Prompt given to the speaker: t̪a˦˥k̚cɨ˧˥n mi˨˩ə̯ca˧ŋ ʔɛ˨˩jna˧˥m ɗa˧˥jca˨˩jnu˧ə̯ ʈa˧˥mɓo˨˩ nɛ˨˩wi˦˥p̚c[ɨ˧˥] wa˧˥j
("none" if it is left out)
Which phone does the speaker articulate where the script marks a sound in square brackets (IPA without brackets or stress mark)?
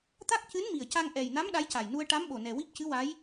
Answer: ɨ˧˥